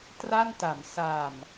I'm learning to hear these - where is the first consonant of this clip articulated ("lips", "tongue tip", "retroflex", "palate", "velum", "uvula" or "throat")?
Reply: tongue tip